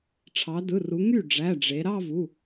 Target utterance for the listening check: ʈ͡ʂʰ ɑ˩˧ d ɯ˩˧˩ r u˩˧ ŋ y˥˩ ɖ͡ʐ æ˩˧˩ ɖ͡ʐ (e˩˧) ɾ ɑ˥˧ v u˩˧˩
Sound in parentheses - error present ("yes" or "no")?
no